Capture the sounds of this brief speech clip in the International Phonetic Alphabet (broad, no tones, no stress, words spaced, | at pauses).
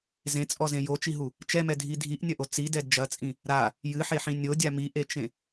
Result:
zẽt͡sʼɔzẽ jot͡ʃiɦu | t͡ʃɛmɛdʱi dʱiʔnʲɐʔo t͡sidɛd d͡ʒɐt͡sʼĩ | ɾa | jɨħeħĩ nʲodʲa miʔet͡ʃẽ